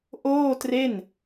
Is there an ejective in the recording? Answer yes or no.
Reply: no